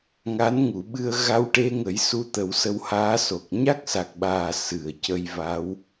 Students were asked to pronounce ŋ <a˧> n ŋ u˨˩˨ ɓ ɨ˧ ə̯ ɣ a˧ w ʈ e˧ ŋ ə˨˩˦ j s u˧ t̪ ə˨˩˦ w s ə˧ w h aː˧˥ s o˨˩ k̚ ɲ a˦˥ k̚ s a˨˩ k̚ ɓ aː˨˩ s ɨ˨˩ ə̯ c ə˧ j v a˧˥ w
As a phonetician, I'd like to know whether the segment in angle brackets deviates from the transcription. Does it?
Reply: yes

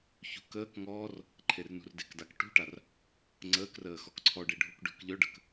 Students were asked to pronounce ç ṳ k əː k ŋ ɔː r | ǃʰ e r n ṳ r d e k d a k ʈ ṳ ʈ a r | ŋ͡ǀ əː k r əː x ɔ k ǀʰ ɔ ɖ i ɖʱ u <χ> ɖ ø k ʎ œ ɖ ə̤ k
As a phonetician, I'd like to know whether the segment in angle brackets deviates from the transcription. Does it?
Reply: yes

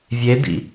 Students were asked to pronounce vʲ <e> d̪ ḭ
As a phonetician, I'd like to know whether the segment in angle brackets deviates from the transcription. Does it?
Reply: no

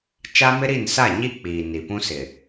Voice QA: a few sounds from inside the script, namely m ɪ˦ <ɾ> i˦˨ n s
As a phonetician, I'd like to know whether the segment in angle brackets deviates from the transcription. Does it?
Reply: no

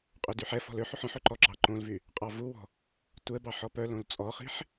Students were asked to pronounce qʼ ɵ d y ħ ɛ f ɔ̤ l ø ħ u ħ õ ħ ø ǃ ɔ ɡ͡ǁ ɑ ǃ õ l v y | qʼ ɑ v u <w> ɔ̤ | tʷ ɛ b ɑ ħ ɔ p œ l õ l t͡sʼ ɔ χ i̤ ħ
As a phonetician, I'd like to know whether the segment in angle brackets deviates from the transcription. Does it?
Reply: no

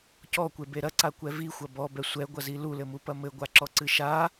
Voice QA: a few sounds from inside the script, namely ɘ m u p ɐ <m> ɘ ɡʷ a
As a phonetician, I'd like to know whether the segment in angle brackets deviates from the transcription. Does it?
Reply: no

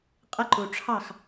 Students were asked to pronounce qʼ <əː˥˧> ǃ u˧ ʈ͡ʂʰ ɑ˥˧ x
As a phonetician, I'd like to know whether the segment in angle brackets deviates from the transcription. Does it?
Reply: yes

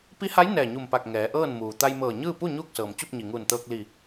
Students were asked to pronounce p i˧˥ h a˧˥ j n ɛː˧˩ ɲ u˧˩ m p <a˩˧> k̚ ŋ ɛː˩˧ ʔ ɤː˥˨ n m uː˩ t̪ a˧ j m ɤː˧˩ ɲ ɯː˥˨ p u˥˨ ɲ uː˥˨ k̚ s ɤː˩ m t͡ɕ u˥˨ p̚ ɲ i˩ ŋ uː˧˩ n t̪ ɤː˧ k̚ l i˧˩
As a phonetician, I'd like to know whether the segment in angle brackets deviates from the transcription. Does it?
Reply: yes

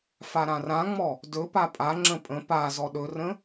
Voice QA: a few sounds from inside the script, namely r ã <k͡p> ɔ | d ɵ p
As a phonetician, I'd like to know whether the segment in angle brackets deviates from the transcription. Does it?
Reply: yes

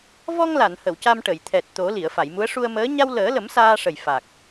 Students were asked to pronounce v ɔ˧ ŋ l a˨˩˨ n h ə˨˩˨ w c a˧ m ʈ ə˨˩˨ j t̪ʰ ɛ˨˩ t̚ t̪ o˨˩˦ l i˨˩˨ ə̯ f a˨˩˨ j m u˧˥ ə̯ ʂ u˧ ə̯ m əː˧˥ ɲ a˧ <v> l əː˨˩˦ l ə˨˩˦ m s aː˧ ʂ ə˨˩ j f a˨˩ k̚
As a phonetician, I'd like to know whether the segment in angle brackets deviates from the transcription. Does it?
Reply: yes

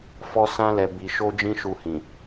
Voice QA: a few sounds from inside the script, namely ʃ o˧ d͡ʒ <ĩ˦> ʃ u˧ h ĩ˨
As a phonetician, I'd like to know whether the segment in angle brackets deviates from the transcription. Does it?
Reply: no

